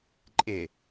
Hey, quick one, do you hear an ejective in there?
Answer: yes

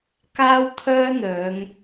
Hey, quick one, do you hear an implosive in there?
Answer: no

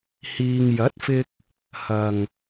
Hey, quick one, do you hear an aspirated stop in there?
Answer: no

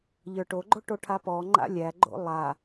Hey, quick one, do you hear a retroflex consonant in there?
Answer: yes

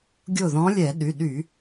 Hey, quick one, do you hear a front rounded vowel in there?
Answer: yes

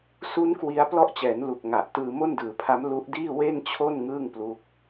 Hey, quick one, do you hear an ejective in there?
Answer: no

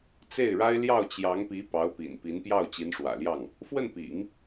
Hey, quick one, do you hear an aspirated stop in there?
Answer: no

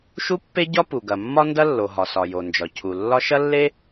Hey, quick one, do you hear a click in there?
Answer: no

